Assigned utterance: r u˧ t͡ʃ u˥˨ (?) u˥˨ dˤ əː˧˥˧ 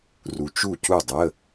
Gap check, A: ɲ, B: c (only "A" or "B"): B